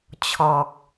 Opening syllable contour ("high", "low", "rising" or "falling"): low